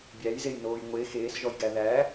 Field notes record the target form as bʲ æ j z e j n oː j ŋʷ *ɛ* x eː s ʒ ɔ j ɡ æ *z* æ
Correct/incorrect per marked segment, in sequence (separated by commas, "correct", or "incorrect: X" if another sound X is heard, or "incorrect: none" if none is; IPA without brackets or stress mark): incorrect: e, incorrect: ð